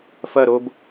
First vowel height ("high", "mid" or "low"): low